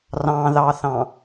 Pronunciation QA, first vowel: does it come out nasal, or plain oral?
nasal